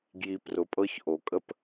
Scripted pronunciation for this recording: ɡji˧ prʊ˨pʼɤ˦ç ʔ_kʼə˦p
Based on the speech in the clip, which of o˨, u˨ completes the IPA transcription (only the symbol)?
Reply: o˨